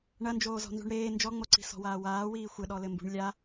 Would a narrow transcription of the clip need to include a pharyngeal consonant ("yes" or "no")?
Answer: no